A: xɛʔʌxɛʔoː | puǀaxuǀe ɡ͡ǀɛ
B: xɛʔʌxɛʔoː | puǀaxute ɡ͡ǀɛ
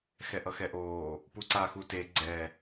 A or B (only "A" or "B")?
B